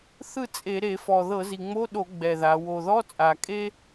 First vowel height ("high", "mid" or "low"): high